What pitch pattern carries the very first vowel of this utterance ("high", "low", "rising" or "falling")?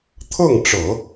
falling